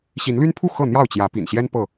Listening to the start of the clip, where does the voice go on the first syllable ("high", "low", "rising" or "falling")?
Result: rising